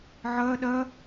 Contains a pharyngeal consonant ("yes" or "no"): yes